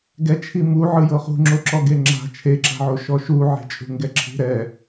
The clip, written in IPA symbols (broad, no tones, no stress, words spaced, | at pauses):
ɡɛt͡ʃʰi mu ʕɯjɤχṳŋ͡ǁo ǁɔɡeŋ͡ǁa̤ t͡ʃʰeǁa̤ʕo ʃɔʃuʕe̤t͡ʃʼṳ ŋɡɛǁʰi̤ ɾɛ